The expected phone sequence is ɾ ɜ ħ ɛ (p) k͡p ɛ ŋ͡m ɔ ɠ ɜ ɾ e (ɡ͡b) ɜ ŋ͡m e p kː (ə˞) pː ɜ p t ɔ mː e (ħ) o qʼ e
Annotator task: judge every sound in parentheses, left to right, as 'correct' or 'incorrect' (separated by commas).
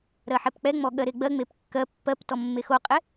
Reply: correct, correct, incorrect, incorrect